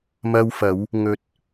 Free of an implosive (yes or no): yes